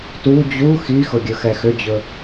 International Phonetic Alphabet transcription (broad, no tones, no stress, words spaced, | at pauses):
tu d͡ʑu xixʊ ɡʲɵxɛxʏd͡ʑɵ